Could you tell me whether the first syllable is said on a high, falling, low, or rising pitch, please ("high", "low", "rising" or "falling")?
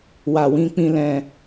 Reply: low